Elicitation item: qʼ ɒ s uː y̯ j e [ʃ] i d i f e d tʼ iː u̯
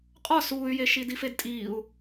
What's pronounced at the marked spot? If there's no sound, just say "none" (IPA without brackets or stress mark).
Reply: ʃ